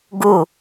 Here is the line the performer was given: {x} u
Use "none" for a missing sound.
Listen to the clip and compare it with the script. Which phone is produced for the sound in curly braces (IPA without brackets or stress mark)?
ɡ